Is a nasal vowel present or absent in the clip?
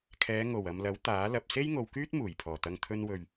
absent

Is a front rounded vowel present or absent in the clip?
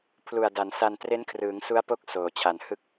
absent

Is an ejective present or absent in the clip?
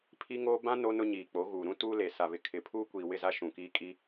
present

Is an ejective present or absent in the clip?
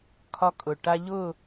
present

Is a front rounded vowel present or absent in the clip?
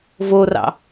absent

